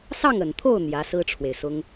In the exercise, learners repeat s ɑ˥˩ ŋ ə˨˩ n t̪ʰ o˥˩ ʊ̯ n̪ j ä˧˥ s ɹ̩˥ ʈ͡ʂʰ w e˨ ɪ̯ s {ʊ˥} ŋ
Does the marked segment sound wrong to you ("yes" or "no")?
no